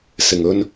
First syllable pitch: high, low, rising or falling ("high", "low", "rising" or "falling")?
low